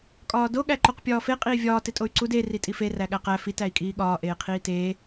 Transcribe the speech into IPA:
kʼ ɒː d o ɠ æ ǃ o q pʲ ɒː f e qʼ iː vʲ ɒː t e tʼ o y̯ ǀ u d e r i tʼ i f e r æ ɠ æ q æ f i t æ i̯ kʼ iː ɠ ɒː ʔ eː qʰ iː t eː

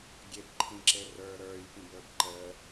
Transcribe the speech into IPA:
ɡʲ e b ǃʰ ĩ ǁ e r ə˞ ɾ ə˞ j p ĩ b ə˞ b ǃ ə

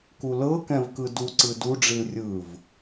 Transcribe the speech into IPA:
k u l ɤ k ɛ̃ v k ɯ d u ǀ ɯ d u ɖ͡ʐ i l rʲ ɯ v

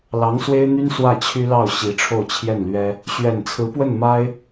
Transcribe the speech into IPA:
l ɑ˧˥ ŋ s w e˥ ɪ̯ n̪ y˥ n s w ä˥˩ t͡ɕʰ y˥ l ɑ˥˩ ʊ̯ ɕ i˧˥ ʈ͡ʂʰ o˥˧ ʊ̯ t͡ɕʰ j ɛ˥˩ n l ɥ ɛ˥ | ɕ ɥ ɛ˨˩ n t͡sʰ ɹ̩˧˥ p w ə˥˩ n m a˥ ɪ̯

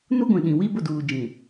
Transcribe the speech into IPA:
n u˦ ɡʷ ĩ˨ ɗ ĩ˨ w i˦ b ʊ˦˨ d uː˨ d͡ʒ ĩ˨

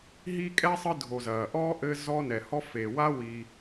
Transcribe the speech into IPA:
ɦ i˥ kʼ ɛ˥ sˤ ɨ˦ dʱ o˨ z ɐː˩ ʔ ɔː˥ ʔ ɘ˦ z ɔ˦ n ɛ˩ h ɔ˦ f e˩ w a˦ w i˨

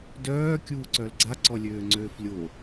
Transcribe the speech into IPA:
d œː kʲ uː ǀ œ l ɡ͡ǀ a ǀ ɔ lʲ øː ŋ͡ǀ øː f lʲ o

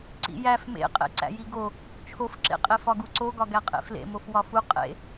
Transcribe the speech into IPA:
ǀ ḭ j æ f m ḛ qʼ ḛ ǀ æ̰ j i ɡ o | t͡ʃʰ o f ǁ ḛ qʼ e f ɒ ɡ u ǀ o ɡ ɒ ɡ æ qʼ ḛ f l ḛ m o f w ɒ f u qʼ ḛ

